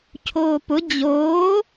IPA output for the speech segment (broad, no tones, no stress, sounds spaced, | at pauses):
cʰ oː p ʊ d͡ʑ oː